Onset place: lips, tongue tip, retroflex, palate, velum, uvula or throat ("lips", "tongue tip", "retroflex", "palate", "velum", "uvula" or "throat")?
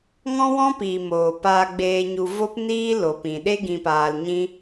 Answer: velum